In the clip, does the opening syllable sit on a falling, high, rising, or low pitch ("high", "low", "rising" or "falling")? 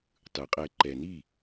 low